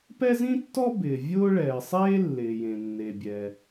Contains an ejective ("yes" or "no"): no